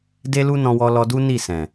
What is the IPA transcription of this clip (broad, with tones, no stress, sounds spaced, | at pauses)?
d e˦ l u˦ n ɔ̃˧ w ɔ˧ l ɔ˧ d u˦ n i˦˨ s ɛ̃˨